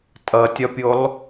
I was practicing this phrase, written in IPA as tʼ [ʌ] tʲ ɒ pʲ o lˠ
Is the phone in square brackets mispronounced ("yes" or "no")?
no